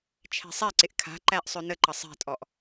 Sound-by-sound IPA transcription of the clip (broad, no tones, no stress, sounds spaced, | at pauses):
t͡ʃʰ ɛ̤ sˤ ɛ ǀ ɪ ʔ kʰ a̤ ǃ æ ʔ sˤ ø n ə ǃ ə sˤ ɛ̤ tʼ ɔ ʔ